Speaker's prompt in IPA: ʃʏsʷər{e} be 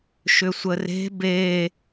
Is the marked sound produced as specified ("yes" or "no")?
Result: no